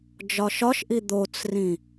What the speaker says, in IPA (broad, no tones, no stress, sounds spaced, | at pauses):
d͡ʒ ɒ ʃ ɒ ʃ ʔ i d̪ o t͡s r ĩ